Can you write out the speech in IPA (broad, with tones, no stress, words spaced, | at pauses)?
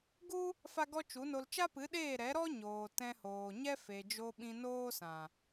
ɡu˦ | fa˦ɡɔ˦t͡ʃu˨˦no˧l t͡ʃa˦pɨ˨˦ɗeː˦˨ ɾɛ˨˦ɾɔ˦ ɲoː˨tɛ̃˧hoː˨ ɲɛ˦fe˨d͡ʒo˧ ɓĩ˧noː˦sã˨